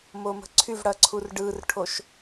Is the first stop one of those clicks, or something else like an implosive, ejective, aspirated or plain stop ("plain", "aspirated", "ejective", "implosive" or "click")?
click